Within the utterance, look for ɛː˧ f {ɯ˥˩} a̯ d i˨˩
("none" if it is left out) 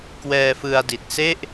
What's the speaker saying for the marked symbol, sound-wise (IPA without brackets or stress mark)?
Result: ɯ˧